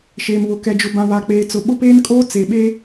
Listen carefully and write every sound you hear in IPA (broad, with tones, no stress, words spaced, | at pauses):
ʃeː˨mβʊ˨ kɛ˨d͡ʒʊ˨bã˨ βa˨k͡peː˨t͡sʊ˨ ɓʊ˦peː˦nkʼoː˦ t͡se˨ɓe˦